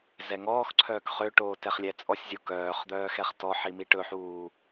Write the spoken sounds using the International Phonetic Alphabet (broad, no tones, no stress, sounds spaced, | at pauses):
z ɛ ŋ ɔː x ǀʰ œː k χ ø ʈ oː t ɛ χ lʲ ɛ t͡sʼ ɔ sʲ zʲ o k œː χ d̪ œː x ɛ χ t ɔ ħ i m i ʈ ɵ ħ uː